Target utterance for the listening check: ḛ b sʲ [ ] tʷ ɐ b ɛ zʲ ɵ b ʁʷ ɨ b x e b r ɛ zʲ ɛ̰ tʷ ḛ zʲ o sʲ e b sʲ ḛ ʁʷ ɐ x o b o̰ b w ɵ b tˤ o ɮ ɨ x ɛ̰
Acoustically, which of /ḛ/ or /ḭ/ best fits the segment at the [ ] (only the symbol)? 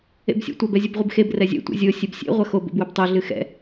ḛ